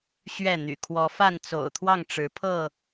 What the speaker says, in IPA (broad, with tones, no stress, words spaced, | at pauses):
ɕɥɛ˥˨n̪y̰˨˩ kʰwɔ˨˦fa˥˨n t͡so̰˨˩ʊ̯t̪ʰwɑ˥˨ŋʈ͡ʂɻ̩˨˦ pʰɤ˥˨